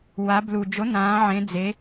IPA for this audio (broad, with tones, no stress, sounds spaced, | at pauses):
w a˩˧ b l u˩ d͡ʒ o˩˥ n ãː˩˧ ʕ ẽ˩˧ d͡z e˩˧